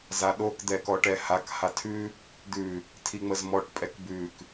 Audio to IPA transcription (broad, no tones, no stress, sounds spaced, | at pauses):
z a ɗ o k d̪ ɛ k ɔ ʈ ɛ h a k h a tʰ ʉ | d̪ ʉ | tʰ i ŋ͡m ə z m ɔ ʈ pʼ ɛ k b ʉ k